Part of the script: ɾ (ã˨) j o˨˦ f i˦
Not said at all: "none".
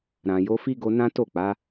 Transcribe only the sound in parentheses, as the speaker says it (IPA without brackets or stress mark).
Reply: ã˨